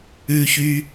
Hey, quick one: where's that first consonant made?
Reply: palate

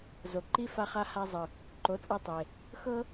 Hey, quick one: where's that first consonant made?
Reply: tongue tip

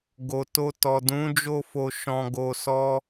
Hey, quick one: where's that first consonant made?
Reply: velum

